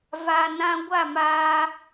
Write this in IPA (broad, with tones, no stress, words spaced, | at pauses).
va˨ nã˧ ɡʷa˦˨maː˧